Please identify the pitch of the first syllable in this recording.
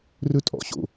high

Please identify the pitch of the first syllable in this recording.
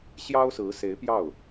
high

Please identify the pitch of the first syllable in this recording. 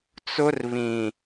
high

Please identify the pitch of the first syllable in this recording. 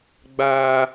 low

